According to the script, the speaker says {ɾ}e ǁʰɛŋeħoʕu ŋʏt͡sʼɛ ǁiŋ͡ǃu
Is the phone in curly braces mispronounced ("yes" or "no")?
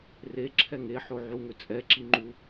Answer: yes